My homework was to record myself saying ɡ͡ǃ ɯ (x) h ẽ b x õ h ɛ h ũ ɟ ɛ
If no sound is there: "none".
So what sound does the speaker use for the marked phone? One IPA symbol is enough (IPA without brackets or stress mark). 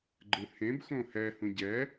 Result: none